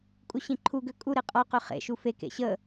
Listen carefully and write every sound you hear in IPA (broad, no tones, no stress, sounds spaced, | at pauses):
kʼ u ɕ ĩ ǃʰ u ɡ ø kʼ u ɾ e qʼ ɔ q ø χ ḛ ʃ u f e k ḛ ɕ ə